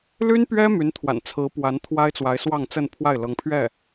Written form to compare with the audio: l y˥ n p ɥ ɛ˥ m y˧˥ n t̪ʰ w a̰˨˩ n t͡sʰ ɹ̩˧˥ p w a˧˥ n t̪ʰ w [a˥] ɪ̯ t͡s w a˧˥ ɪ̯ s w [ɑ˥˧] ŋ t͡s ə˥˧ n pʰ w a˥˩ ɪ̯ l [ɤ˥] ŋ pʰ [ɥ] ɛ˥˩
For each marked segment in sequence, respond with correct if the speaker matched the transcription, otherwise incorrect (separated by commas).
correct, correct, incorrect, correct